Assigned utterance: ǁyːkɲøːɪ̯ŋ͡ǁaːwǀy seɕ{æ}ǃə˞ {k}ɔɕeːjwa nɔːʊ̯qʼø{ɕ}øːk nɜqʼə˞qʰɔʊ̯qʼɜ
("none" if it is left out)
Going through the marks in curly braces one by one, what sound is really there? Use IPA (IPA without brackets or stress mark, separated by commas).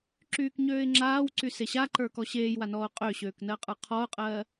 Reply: a, k, ɕ